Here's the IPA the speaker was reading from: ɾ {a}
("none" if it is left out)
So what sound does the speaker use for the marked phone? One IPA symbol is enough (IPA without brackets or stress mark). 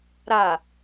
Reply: a